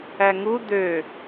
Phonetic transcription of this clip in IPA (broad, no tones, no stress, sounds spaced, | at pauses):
æ ŋ u d̪ ø